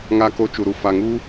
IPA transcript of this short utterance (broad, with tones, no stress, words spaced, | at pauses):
ŋa˧ko˧ t͡ʃu˨ɾu˨ fa˨ŋu˧